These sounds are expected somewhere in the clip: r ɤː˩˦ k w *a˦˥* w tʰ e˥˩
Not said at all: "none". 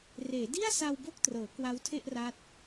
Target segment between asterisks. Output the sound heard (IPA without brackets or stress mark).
a˦˥